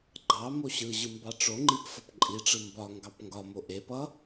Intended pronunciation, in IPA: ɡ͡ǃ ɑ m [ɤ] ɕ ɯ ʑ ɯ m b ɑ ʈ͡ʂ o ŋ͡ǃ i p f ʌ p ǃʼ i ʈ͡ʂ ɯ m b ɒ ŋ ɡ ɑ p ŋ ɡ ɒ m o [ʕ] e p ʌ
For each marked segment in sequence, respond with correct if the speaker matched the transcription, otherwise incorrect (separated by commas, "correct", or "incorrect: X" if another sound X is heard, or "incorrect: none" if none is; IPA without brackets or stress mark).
incorrect: o, incorrect: ʔ